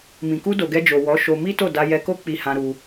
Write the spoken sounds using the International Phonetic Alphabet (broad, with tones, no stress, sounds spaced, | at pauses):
m ĩ˨ k u˧ d o˨ ɡ ɛ˧ d͡ʒ o˨ w ɔ˨˦ ʃ o˧ m i˦ t o˦˨ d a˧ j ɛ˧ k o˦ k͡p i˧ h ã˧ ɾ u˧